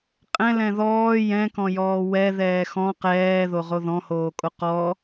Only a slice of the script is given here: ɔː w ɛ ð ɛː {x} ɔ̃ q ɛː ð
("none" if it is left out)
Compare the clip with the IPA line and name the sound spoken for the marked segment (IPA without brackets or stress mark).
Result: x